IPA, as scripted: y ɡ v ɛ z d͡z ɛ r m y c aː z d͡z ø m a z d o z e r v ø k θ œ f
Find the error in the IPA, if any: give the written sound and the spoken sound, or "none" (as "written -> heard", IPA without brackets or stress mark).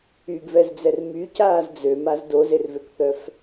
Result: none